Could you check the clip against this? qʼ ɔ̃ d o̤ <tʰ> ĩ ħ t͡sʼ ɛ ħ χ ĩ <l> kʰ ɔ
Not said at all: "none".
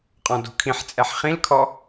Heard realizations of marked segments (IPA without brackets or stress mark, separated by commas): kʰ, l